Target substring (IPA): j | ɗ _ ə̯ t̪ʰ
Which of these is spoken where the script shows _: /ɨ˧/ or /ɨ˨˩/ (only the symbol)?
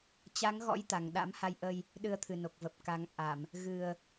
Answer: ɨ˧